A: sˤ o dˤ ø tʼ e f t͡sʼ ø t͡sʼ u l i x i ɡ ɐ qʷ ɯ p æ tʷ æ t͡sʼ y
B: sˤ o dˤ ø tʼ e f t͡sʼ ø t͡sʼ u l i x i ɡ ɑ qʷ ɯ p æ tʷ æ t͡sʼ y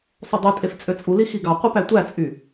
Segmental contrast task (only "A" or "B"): B